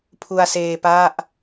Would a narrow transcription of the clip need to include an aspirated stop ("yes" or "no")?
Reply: yes